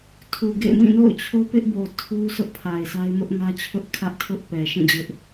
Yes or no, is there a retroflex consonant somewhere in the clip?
no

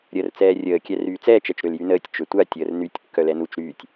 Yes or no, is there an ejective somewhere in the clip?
no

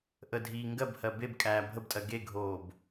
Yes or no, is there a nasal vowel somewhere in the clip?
no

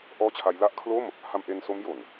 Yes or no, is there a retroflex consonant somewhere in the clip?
no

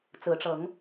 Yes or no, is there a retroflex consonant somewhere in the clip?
yes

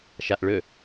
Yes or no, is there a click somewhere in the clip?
no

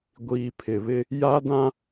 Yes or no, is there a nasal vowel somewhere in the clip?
yes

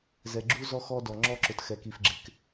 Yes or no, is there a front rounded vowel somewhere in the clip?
no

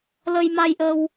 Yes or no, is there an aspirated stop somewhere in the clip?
no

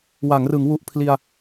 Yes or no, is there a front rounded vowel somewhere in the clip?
no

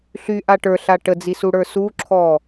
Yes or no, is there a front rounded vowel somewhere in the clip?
yes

